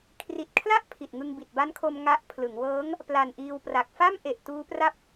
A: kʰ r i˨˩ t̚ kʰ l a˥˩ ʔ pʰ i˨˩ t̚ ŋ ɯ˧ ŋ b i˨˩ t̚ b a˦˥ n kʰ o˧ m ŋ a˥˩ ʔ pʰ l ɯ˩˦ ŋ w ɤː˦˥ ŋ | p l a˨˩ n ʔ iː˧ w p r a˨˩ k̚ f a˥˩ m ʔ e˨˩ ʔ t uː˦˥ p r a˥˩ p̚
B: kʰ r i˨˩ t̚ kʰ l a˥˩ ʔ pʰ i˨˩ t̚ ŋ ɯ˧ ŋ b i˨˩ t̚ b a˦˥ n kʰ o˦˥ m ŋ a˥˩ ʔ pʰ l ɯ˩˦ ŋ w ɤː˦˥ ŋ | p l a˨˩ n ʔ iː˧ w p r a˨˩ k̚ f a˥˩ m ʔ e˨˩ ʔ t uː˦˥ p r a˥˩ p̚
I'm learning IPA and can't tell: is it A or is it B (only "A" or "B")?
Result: A